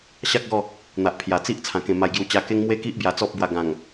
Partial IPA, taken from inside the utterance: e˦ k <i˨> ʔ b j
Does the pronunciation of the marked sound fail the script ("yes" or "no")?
yes